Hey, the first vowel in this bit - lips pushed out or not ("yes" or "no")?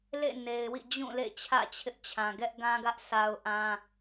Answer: no